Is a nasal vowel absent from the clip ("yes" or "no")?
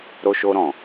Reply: no